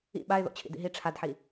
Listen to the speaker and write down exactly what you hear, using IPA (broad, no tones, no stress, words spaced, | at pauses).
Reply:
ḭ ɓaɪ̯ðo̰ t͡ɕʰḭdḭɦi ʈ͡ʂʰadħi